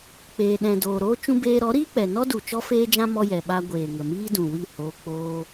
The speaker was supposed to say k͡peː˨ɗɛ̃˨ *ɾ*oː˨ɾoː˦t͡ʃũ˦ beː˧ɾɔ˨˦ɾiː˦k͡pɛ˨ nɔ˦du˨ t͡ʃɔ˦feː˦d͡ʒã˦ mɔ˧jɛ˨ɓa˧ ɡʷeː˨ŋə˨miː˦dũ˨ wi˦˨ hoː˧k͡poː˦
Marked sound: incorrect: d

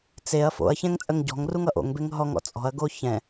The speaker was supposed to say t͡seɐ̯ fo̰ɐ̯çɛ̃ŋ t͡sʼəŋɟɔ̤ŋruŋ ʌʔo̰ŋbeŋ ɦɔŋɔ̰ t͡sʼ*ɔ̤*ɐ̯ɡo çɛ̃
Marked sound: correct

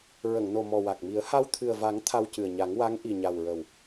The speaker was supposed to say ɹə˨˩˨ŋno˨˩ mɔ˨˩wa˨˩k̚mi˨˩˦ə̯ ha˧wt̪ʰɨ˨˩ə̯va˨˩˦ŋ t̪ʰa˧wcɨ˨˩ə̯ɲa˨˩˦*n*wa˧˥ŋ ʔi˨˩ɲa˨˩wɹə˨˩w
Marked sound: incorrect: ŋ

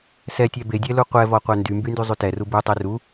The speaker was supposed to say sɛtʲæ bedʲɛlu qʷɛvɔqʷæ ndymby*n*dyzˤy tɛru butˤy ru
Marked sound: correct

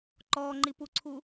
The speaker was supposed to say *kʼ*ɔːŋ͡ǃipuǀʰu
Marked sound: incorrect: ǃ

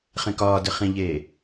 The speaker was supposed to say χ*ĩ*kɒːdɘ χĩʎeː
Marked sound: incorrect: ẽ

